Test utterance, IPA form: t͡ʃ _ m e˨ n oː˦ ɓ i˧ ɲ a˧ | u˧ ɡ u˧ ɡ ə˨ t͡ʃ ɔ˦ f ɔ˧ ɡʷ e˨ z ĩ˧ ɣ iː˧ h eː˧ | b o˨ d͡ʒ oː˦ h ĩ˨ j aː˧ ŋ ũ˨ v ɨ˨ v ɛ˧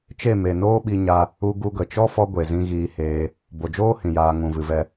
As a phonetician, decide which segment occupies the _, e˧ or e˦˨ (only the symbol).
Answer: e˦˨